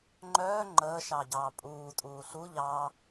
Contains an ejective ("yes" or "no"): yes